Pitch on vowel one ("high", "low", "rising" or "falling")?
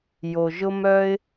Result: low